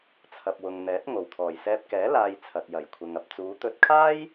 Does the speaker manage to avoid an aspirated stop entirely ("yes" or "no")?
no